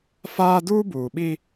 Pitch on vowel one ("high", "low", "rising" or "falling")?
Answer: high